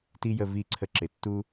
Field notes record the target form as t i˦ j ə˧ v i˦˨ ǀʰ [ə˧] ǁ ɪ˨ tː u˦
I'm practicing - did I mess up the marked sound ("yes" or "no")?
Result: no